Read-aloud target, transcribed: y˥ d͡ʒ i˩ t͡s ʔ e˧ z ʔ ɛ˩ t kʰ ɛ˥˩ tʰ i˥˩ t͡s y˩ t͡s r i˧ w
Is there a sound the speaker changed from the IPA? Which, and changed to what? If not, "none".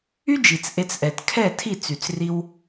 z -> t͡s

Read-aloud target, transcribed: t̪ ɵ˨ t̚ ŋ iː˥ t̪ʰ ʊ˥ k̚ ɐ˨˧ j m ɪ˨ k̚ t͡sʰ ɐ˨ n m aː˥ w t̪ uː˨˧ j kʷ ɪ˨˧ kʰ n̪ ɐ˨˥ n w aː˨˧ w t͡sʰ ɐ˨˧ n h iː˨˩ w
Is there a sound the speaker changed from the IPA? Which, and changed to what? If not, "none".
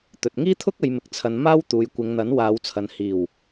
kʰ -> ŋ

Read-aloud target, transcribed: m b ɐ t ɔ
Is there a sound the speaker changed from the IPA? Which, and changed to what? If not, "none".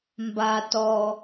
ɐ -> a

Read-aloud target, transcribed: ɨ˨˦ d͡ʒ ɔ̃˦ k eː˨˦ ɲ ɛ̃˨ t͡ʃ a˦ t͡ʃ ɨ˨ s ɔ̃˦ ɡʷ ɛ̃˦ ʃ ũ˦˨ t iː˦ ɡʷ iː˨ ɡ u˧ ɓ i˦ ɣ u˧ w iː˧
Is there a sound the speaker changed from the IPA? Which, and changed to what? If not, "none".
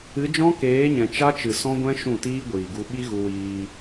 none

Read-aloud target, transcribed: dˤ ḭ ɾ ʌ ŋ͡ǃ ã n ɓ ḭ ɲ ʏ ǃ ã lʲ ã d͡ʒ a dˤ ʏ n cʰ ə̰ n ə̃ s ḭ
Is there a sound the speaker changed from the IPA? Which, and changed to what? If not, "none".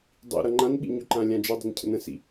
none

